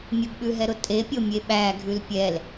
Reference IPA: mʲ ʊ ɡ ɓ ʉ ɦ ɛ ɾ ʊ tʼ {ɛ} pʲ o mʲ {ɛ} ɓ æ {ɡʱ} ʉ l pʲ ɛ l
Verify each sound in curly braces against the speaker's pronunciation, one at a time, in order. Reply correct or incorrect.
incorrect, incorrect, correct

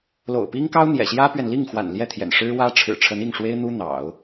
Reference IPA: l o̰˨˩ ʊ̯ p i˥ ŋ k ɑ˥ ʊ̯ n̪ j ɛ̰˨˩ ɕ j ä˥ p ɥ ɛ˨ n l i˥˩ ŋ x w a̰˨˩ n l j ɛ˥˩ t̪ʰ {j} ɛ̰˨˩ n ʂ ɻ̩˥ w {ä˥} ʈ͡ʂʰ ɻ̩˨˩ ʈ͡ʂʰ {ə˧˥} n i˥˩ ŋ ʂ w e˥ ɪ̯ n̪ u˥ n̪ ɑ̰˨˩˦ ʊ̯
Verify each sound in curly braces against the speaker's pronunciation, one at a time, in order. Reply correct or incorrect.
correct, correct, correct

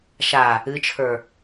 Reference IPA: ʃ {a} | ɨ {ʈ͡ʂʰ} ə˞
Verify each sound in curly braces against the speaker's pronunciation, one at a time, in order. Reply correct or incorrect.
correct, incorrect

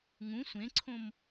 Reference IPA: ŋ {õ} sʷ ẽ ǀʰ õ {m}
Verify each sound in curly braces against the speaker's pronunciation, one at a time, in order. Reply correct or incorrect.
incorrect, correct

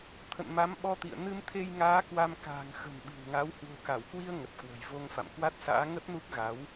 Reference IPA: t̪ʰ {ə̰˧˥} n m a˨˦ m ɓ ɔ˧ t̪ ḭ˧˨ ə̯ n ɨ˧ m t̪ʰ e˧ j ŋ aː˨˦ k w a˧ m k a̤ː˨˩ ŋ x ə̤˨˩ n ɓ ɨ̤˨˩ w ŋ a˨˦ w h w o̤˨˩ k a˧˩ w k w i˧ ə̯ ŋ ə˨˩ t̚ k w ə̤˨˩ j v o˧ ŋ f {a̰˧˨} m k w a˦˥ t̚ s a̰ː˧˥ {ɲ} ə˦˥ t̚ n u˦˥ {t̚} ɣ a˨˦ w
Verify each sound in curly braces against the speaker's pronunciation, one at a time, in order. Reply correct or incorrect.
incorrect, correct, incorrect, incorrect

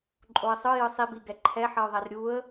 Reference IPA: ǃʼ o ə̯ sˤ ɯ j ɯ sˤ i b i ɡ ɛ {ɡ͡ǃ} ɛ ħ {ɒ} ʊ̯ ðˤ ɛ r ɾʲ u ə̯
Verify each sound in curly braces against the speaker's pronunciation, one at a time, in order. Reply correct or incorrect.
incorrect, incorrect

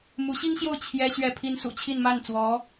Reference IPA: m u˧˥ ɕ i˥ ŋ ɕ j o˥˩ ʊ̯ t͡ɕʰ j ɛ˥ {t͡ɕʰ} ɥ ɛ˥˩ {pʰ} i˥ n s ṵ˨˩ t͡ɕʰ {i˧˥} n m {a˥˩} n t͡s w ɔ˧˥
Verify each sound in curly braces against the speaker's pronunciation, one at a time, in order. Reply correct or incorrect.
incorrect, correct, incorrect, correct

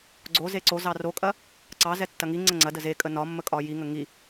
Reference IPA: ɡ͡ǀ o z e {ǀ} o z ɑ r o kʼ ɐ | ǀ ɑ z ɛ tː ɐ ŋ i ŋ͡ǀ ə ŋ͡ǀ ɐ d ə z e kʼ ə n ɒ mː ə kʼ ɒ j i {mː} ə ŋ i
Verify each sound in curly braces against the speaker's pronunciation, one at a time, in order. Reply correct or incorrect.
correct, incorrect

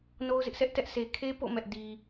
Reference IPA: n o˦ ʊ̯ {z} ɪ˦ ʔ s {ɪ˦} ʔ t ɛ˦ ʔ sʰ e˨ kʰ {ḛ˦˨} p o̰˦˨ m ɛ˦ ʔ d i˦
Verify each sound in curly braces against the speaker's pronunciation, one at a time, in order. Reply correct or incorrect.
correct, incorrect, incorrect

